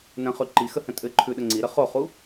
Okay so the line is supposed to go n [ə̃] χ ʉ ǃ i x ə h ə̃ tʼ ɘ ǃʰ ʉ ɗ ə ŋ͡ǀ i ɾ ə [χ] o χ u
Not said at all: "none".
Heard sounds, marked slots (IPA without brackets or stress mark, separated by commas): ə̃, χ